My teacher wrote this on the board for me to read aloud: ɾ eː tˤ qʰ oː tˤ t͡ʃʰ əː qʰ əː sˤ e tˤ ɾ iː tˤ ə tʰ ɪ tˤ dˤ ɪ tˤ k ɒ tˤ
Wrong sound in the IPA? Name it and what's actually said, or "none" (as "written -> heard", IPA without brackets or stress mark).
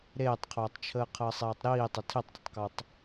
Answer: e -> eː